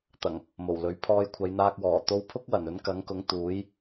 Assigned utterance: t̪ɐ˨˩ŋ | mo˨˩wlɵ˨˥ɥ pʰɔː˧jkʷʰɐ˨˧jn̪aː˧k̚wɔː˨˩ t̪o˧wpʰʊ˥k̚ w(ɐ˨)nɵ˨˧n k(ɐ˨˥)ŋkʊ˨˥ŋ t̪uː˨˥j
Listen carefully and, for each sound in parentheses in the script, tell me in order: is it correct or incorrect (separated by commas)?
incorrect, correct